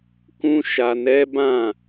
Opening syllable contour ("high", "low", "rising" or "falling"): high